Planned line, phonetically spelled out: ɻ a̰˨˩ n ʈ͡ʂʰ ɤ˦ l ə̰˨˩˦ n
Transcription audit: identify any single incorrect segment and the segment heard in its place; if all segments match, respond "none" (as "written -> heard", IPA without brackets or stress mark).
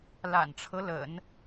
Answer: ɻ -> l